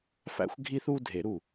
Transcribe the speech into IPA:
f æ̰˦ xʷ ɡʱ i˦ θ u˦ dʱ e˨˩˦ ɾ u˧˩

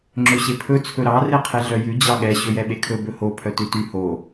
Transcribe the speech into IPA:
ŋ͡ǁ ɵ ɕ e pʰ ɵ t͡sʰ ɵ ɾ ɑ r e qʰ e ɮ œ j ʉ d͡ʑ ɑ ɠ ɛ ɕ ɵ j ɛ ɓ e kʰ ɵ b ɵ h o pʰ œ t ʉ t y h o

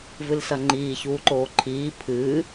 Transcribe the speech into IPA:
v ɨ l s ɐ ŋ͡ǃ iː ç uː ǃ oː ǃʰ iː pʰ ɨː

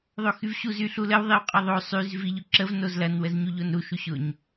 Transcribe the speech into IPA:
ðˤ o x y v ɕ u z y ɬ u l ə w ðˤ i w qʼ ə ðˤ o sˤ y z v i ʎ ʊ ǁ ə v n o z l ɐ n w ə z ɲ u ʎ o n ɾ u ʃ u ɕ ʊ ɲ

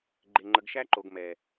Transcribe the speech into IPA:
ɡ͡ǃ e˨ ŋ͡ǃ ə˨ ɡ ʃ æ˦ ǃ o˨ ɡ m ɛ˨

